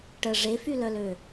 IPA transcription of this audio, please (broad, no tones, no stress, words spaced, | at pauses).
ʈə ʐefylœlø